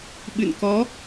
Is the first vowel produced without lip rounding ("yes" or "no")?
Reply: yes